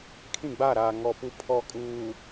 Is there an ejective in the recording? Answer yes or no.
yes